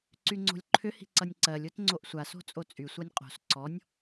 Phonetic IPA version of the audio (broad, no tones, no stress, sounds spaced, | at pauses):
ǀ y ŋ͡ǀ o̤ lʲ ǃʰ ʏ h i̤ ǀ ʌ nʲ ǀ ɜ lʲ o t ŋ͡ǀ o ʔ sʷ a s o̤ t͡sʼ o t͡sʼ y sʷ ɜ nʲ qʼ o̤ s ǀ ɔ nʲ